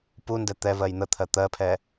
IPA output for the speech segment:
p u n d ɛ t̪ ɛ v ɜ j n̪ ə t̪ʰ ɜ t̪ ɜ pʰ ɛ

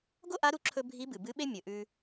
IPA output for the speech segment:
ɡ o˥ ʔ a˧˥ ɾ u˧ ǁʰ ɵ˧ bʱ i˧˥ b ɨ˩ b ɨ˧˥ ɓ e˥ mʲ ɵ˩˧ ʔ ʉ˧

